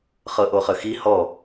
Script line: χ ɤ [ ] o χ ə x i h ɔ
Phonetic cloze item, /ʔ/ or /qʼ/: ʔ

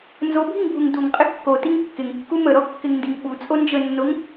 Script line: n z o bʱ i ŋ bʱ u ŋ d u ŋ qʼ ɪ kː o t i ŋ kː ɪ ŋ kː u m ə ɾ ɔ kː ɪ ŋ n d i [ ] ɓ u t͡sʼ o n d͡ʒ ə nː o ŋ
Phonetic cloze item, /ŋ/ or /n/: ŋ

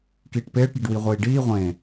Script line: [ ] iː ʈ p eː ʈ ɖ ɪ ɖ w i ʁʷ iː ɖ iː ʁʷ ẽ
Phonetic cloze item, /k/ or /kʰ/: k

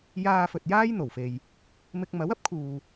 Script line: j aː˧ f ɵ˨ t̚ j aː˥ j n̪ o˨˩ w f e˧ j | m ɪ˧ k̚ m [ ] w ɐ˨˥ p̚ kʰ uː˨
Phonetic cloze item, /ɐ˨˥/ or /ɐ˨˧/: ɐ˨˥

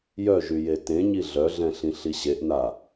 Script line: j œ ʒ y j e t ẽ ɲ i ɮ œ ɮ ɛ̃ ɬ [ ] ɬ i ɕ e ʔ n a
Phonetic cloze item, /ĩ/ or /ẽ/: ĩ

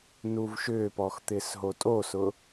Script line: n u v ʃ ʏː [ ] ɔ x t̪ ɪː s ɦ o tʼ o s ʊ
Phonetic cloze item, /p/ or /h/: p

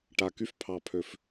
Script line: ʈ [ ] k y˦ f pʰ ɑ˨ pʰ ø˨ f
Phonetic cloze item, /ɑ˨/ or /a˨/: a˨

